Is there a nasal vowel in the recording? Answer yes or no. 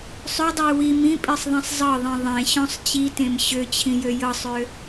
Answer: yes